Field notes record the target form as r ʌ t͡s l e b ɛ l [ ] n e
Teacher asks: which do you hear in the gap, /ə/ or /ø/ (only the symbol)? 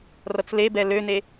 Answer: ø